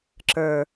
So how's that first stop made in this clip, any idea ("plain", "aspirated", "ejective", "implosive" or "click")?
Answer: click